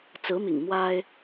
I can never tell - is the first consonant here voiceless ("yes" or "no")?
yes